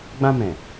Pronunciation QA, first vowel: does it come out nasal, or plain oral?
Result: nasal